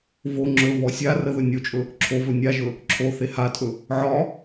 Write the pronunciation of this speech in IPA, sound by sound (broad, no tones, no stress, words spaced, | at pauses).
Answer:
vo ŋ͡ǁɵvɔ sʲarə ðɵnʲot͡ʃʼɵ | ǁʰovɵ nʲaʒɵ | ǁʰo θehatʼɵ | ʕɒ